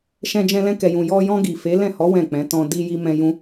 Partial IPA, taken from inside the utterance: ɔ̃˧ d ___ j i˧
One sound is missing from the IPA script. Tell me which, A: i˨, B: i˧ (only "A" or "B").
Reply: B